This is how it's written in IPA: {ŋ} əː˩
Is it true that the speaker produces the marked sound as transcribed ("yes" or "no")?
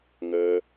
yes